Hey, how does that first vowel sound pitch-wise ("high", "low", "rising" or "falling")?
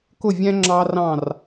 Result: falling